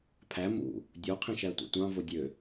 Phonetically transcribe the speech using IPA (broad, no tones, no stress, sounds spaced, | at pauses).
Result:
pʰ æ m ṵ | dʲ o qʰ ĩ ʃ æ tʷ ḭ tʷ ɑ̃ v o dʲ ø